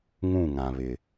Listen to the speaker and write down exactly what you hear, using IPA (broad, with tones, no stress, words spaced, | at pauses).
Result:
ŋũ˦˨ŋã˨βɪ˨